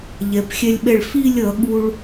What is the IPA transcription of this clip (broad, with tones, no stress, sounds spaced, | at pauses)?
ʎ ɛ˩˧ p xʲ ɛ˧ lʲ ɓ ɛ˧˩ ɭ f i˥˧ lʲ ʌ˩˧ ɠ u˥ ɭ